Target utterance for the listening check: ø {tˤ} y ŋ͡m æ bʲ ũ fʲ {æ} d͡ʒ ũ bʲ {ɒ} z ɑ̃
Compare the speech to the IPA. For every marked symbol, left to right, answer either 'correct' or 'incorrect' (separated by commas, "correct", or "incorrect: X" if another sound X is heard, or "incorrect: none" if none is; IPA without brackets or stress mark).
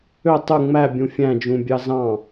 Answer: correct, incorrect: æ̃, incorrect: ɑ